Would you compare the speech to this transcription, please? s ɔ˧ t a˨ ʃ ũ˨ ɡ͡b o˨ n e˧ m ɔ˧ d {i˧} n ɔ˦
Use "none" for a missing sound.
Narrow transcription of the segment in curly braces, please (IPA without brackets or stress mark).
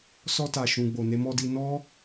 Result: i˧